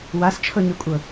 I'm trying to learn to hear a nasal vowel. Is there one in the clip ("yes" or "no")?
no